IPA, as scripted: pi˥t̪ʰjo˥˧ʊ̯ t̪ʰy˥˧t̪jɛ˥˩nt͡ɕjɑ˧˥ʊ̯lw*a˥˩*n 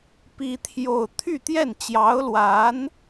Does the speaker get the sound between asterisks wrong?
yes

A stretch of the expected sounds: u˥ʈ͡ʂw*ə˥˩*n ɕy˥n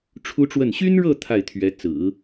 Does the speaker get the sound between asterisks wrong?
no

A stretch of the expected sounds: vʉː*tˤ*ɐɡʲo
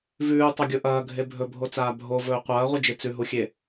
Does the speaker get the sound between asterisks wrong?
no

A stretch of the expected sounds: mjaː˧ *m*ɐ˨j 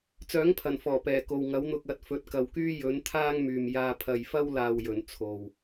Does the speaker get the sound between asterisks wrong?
yes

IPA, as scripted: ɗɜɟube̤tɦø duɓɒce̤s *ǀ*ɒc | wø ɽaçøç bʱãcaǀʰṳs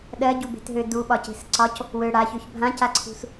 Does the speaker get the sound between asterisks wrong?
no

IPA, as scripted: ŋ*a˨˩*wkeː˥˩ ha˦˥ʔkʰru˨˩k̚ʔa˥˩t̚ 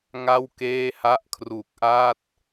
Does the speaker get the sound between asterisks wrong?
yes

